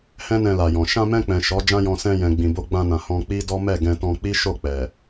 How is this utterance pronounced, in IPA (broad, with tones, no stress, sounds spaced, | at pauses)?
h ɛ̃˦ n ɛ̃˧ l a˨ j ɔ̃˨ ʃ ã˧ m ɛ̃˧ k͡p ɛ̃˨ ʃ ɔ˨˦ d͡ʒ ã˦ j ɔ̃˧ s ɛ̃˧ j ɛ̃˨ ɡ͡b ĩ˨ b o˧ ɡ͡b ã˧ n ã˨ h ɔ̃˧ k͡p i˦ d ɔ˦ m ɛ˦˨ ɡ ɛ̃˧ t ɔ̃˧ k͡p i˦ ʃ o˦˨ k͡p ɛ˨